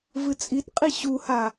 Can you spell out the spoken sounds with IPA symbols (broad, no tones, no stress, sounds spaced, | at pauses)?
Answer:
v ɨ t͡sʼ i t qʼ i ɕ u h a